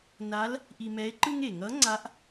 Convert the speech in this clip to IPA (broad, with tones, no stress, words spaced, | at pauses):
na˧˥l | ʔi˧mɛ˧˥e̯ǃɯ˥ŋ e˩ŋʌ˧˥ŋ͡ǀa˧˥ʔ